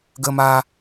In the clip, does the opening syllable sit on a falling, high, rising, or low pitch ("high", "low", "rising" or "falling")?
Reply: high